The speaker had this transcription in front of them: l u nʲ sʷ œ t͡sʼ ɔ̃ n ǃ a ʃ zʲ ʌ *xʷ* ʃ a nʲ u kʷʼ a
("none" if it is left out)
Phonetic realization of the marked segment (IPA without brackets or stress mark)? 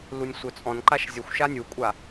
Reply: xʷ